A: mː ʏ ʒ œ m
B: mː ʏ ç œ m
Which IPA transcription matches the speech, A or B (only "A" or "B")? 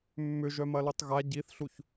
A